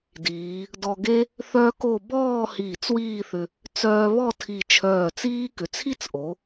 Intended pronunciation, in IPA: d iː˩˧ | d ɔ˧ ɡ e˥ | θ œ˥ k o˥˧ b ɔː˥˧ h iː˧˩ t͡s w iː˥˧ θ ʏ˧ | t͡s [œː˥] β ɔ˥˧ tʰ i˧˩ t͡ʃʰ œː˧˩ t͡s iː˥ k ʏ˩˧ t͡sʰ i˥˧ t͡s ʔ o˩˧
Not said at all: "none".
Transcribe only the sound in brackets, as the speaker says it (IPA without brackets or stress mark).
œː˧